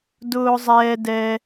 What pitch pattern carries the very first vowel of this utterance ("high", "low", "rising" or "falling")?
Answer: high